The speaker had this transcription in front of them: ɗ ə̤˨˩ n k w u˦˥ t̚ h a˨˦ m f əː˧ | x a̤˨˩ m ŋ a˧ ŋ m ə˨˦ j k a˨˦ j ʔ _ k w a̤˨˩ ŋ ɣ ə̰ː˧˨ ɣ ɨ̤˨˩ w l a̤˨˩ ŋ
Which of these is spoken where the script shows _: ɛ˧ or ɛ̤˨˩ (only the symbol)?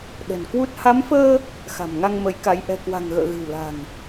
ɛ̤˨˩